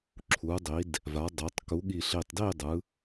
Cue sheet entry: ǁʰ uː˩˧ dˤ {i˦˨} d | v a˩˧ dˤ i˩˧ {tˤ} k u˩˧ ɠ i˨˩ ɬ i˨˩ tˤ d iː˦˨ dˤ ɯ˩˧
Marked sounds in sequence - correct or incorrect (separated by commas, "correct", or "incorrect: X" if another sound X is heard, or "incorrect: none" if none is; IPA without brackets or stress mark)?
incorrect: i˩˧, correct